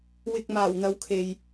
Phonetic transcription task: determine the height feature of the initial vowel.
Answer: high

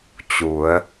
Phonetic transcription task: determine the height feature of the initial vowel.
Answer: high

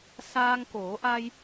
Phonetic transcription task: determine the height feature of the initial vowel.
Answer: low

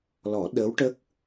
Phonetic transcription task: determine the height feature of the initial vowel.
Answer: mid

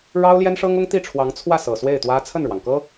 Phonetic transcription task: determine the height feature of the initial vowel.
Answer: low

